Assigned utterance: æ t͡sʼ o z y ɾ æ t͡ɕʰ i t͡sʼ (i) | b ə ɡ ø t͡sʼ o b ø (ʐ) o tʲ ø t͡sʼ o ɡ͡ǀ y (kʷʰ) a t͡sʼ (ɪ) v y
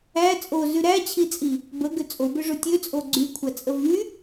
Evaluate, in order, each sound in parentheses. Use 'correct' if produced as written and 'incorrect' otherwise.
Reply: correct, correct, correct, incorrect

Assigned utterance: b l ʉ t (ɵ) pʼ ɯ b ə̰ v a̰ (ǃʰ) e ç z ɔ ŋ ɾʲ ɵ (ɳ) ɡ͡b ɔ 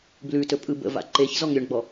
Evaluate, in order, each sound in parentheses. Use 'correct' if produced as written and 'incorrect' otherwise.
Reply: correct, incorrect, correct

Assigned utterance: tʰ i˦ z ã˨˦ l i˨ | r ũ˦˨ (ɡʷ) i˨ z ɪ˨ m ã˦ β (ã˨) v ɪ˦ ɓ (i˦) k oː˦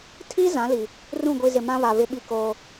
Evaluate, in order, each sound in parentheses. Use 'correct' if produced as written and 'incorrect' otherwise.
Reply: correct, incorrect, correct

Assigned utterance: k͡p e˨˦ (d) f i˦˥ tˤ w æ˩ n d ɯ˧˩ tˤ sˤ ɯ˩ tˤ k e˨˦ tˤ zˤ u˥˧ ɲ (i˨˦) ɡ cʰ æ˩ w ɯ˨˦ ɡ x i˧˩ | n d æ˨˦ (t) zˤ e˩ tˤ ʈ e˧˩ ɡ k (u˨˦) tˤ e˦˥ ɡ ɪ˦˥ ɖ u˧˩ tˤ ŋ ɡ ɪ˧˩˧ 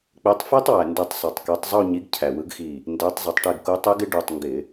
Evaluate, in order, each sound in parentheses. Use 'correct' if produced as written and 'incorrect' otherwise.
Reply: incorrect, correct, incorrect, correct

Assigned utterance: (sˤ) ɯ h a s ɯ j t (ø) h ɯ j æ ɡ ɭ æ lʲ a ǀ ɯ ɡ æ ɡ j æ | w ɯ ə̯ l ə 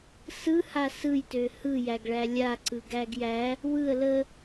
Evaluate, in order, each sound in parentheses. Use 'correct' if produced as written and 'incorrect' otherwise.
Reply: incorrect, correct

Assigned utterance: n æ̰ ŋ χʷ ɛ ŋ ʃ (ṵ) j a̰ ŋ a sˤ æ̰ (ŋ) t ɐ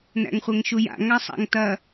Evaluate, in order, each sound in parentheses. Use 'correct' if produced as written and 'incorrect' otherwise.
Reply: incorrect, correct

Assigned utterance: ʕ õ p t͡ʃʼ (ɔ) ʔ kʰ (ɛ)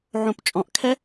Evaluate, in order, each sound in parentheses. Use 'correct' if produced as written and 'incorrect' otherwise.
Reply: incorrect, correct

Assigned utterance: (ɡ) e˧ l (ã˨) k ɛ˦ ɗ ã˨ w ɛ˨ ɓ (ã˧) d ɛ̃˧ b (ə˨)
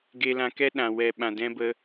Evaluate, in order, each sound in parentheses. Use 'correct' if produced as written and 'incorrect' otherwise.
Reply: correct, incorrect, incorrect, incorrect

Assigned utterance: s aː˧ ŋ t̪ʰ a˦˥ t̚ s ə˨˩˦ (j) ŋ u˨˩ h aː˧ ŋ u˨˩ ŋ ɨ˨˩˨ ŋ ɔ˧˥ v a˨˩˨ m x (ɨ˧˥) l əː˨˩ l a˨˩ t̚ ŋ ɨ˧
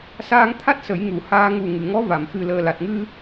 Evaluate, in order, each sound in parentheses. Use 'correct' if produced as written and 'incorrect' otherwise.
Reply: correct, incorrect

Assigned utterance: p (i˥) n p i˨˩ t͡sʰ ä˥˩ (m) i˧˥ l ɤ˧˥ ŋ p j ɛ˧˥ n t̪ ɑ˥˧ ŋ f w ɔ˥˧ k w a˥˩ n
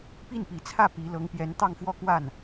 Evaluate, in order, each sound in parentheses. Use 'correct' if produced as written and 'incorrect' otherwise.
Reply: incorrect, incorrect

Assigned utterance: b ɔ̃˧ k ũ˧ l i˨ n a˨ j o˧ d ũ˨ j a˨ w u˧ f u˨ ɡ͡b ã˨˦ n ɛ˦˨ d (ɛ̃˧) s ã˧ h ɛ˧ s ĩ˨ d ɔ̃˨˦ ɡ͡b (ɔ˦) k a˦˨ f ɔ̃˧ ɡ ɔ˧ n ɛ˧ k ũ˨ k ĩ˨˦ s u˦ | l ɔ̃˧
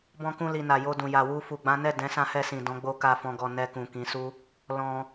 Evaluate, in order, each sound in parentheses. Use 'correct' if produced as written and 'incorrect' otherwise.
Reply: incorrect, incorrect

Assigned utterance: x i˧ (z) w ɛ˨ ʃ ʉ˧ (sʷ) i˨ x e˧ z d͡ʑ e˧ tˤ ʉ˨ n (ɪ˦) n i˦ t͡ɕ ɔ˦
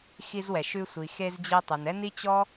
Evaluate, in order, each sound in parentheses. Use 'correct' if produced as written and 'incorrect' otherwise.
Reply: correct, correct, incorrect

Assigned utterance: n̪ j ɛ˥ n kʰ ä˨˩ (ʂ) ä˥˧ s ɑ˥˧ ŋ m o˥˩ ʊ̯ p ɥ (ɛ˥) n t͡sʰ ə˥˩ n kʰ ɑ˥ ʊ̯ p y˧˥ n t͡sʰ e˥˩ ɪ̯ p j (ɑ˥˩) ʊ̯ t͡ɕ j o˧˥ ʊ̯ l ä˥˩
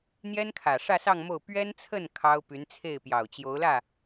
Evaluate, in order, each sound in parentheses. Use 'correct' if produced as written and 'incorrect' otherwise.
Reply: correct, correct, incorrect

